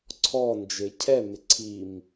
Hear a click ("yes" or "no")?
yes